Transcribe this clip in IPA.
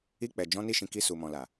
i˧k͡pɛ˨ d͡ʒɔ̃˨˦ni˧ʃĩ˨ ki˧su˨mɔ̃˨la˨

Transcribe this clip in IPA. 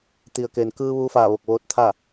t̪i˩ə̯ke˩n kɯː˧ʋuː˧faː˧˩ ʋo˧˩k̚ʋoː˧t̚t̪ʰa˥˨

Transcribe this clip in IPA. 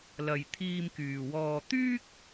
lɐ˧j t̪ʰiː˧mkyː˨wɔː˧ t̪yː˥k̚

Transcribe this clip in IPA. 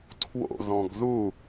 tʰwo̰ ðɔ̃ɡðu

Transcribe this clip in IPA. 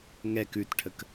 ŋɛk ʉtʈʰək

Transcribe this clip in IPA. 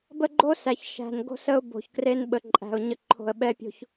bə˦ɡ͡ǃo˦sæ˨ç ʃæ̤˨n ɡo̤˦sə˦ʊ̯bo̤˨çkre˦n ɓə˨ǃʼæ̤˨ʊ̯ ɲə˨ǃʰo̤˨ə̯ ɓɛ˦pʲo̤˦ç

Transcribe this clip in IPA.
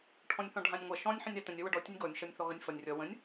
ʈʰɔ̃nʲθɔ̃ɖʱãnʲŋʷɐ ʃɔ̃nʲ ħə̃nʲatə̃nʲ ɐwʌɖɔ tʲənʲɡɔnʲ ʃʌnʲθɔɣɐnʲfʌnʲ rʲʌ wə̃nʲ

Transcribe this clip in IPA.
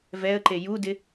vɛə̯ǃe judɪ

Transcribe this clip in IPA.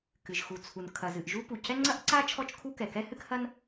kɨ˩ʒxu˩t͡sʰu˩n kʰɐ˩zɨ˩ʔ ʒu˥pu˩ cɛ˥ŋ͡ǀɐ˥ʔǀa˥ t͡ʃʰɔ˥t͡ʃkʰu˥kɛ˩ kɛ˥hɨ˥khɐ˥n

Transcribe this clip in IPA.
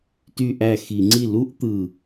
ty˥˧ʔæ˥˩ xi˧˩˧ŋ͡ǀi˥˩ lu˥ʔt̪ɯ˨˩

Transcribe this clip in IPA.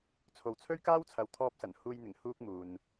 t͡sʰo˨wt͡sʰɵ˥ɥkaː˥wt͡sʰɐ˨w t̪ʰɔː˧p̚sɐ˨˩nhuː˧jn̪ɪ˨˩ŋ huː˧k̚ muː˨n

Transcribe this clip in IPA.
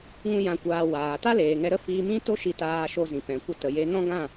ŋũ˦jã˧kʷaː˧ waː˨ ta˦leː˨ŋɛ˧ ɾə˦fiː˧ mĩ˦to˦ʃi˧ taː˧ʃo˧ zĩ˨pɛ̃˨kʷə˧ tə˨je˧ nɔ̃˦ɡã˦˨

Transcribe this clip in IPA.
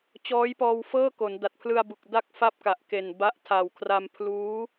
t͡ɕɔː˦˥jpɔː˧w fɤː˥˩ko˩˦n da˨˩t̚pʰlɯ˧a̯bu˨˩k̚ da˥˩k̚fa˥˩p̚ka˨˩ʔ ke˨˩nba˦˥ʔ tʰa˨˩wkʰra˧m pʰluː˦˥

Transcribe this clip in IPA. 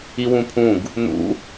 iwũpʰũɡ | nṵ

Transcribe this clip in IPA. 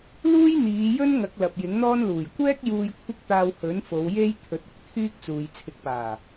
luː˥j n̪iː˨˧jɵ˥n ŋɐ˨˥k̚lɐ˨p̚ jɪ˨˥ŋn̪ɔː˥nluː˨˩j kʷɛː˥k̚ juː˧jkʷʰɪ˥k̚t̪aː˧w hɵ˨˥nfo˨˧wje˥j t̪ʰɵ˨˥t̚ʊ˨˥k̚t̪ʰyː˥k̚t͡suː˨j t͡sʰɪ˨˥k̚paː˨˩

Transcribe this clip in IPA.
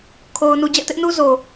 kʰo˦ʊ̯nu˦ d͡ʑɛ̰˦˨tɪ˦ʔnu˦ zo˦

